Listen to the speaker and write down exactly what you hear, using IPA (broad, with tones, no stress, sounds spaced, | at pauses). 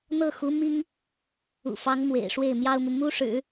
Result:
n̪ ɤ˥˩ x u˧˥ m i˥ ŋ | ṵ˨˩ f ɑ˧˥ ŋ m w ḛ˨˩ ɪ̯ ʂ w e˥˩ ɪ̯ m j ɑ˥ ʊ̯ m u˨ m u˥ ʂ ɻ̩˨˩˦